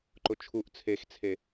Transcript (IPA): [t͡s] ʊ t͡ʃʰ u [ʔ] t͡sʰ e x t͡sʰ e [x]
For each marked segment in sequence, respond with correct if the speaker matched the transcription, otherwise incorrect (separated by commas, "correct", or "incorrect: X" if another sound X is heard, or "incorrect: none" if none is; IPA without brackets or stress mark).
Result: incorrect: ǃ, correct, incorrect: none